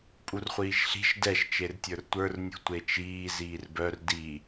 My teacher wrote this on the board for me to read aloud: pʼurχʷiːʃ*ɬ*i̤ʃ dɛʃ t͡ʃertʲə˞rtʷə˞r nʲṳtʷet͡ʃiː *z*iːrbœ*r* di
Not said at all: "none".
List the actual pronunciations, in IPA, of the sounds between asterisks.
ɬ, z, r

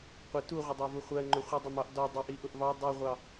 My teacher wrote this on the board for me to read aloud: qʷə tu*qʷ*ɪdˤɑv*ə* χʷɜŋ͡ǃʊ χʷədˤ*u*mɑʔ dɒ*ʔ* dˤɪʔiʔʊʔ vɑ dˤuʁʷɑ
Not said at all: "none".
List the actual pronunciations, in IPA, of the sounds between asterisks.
ʁʷ, ʊ, ʊ, none

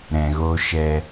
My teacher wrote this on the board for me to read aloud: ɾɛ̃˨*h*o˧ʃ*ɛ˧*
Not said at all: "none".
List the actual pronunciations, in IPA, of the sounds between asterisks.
ɣ, ɛ˧

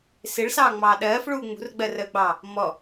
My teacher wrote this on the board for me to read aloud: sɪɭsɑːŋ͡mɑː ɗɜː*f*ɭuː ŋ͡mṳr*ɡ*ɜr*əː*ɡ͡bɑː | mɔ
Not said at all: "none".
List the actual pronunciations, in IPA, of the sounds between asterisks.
f, ɡ͡b, əː

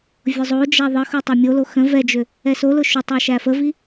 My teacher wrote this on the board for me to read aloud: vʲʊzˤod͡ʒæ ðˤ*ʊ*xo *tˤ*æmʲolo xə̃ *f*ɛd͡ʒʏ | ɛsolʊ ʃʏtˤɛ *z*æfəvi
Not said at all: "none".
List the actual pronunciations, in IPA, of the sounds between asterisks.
ə, tˤ, v, ʃ

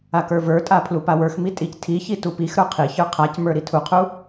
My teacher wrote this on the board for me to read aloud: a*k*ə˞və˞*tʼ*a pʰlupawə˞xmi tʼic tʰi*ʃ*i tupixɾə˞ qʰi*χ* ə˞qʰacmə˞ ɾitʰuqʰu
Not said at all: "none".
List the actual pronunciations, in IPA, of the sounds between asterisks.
k, tʼ, ç, ç

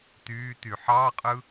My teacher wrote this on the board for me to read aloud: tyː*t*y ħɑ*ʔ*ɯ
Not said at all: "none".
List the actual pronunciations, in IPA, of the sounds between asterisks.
t, qʼ

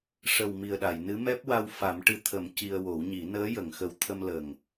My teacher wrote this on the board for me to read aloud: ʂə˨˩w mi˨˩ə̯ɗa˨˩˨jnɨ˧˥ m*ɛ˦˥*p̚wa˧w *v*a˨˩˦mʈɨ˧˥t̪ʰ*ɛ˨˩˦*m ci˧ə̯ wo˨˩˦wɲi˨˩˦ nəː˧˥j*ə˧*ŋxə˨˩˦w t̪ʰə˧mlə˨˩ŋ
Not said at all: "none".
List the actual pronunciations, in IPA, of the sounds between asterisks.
ɛ˦˥, f, ə˨˩˦, ə˨˩˨

